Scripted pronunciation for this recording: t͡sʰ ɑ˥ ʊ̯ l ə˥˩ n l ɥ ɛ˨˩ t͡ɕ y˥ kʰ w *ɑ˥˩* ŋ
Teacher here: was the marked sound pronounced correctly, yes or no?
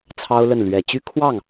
yes